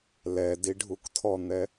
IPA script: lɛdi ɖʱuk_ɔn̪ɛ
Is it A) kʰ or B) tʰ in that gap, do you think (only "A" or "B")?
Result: B